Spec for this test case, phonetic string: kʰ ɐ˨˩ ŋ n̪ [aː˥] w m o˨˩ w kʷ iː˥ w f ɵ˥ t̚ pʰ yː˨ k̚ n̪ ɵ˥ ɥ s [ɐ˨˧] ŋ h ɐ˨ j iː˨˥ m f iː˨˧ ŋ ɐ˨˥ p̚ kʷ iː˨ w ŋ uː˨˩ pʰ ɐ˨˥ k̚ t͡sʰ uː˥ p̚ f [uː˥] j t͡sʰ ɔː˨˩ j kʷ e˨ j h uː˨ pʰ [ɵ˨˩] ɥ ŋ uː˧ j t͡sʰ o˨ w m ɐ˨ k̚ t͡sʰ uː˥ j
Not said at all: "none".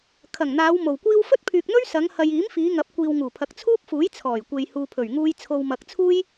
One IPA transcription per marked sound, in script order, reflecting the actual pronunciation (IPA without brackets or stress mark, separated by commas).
aː˨˧, ɐ˨˧, uː˨˥, ɵ˨˩